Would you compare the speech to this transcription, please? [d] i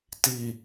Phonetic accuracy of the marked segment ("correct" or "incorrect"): incorrect